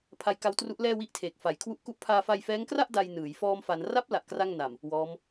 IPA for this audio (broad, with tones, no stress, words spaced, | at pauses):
pʰa˦˥jka˦˥wtru˦˥ʔ lɛː˥˩wi˥˩ʔtʰeː˨˩k̚ fa˩˦jkʰwu˦˥ʔku˦˥ʔ pʰaː˧fa˧jfɛː˦˥ŋkra˥˩ʔ da˧j nɯː˩˦j fɔː˧mfa˩˦n ra˦˥p̚ la˨˩ʔkra˥˩ŋna˨˩m | wɔː˦˥m